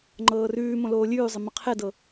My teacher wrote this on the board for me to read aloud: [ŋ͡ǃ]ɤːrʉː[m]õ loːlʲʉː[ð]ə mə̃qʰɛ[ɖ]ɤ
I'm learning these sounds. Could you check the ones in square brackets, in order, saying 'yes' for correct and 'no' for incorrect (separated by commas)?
yes, yes, no, no